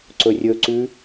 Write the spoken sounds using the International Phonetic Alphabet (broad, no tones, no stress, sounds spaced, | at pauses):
ǀ ɵ rʲ ɵ ǀ ʉ